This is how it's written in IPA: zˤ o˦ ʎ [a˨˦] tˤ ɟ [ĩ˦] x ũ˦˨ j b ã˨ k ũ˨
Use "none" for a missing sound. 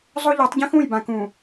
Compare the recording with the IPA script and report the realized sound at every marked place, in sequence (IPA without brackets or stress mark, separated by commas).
a˨˦, ĩ˦